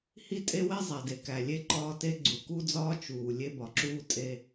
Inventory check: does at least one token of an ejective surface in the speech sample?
yes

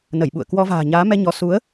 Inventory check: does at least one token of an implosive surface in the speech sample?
yes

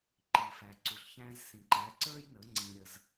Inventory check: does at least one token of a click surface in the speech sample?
yes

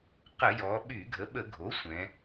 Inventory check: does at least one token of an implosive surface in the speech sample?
yes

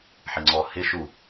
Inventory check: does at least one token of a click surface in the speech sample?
yes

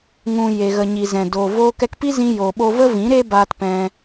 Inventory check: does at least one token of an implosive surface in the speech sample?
yes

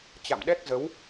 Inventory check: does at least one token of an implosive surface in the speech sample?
yes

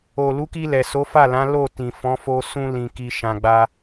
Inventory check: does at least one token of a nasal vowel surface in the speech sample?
yes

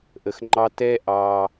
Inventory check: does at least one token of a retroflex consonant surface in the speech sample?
no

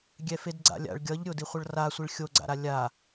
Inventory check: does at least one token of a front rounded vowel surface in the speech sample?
no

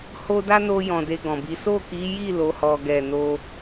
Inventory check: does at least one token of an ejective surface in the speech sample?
no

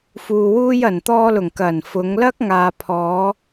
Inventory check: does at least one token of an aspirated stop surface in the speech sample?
yes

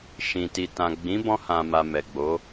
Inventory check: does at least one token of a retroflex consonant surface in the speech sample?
no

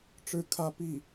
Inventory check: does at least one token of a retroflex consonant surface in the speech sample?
yes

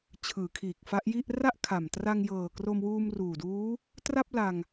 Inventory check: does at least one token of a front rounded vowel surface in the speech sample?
no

